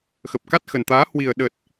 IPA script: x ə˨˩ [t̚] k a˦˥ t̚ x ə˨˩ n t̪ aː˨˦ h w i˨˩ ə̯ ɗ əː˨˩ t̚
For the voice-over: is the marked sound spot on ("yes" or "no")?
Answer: no